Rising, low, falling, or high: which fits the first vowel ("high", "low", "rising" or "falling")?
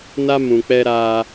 high